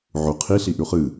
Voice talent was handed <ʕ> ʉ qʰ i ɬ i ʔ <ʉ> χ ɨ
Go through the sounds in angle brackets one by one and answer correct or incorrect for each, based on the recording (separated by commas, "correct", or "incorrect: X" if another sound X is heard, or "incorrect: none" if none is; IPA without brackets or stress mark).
correct, correct